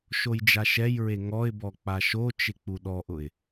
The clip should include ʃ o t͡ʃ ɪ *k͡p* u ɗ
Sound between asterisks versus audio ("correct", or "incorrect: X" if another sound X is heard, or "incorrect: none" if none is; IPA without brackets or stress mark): correct